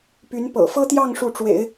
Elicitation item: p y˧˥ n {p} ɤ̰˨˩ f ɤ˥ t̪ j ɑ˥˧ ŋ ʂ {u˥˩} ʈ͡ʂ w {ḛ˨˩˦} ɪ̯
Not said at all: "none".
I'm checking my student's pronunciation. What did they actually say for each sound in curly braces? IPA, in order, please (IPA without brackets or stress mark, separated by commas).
p, u˥˩, ḛ˨˩˦